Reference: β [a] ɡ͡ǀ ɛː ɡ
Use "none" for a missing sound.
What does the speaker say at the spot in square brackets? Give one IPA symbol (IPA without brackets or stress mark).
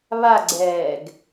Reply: a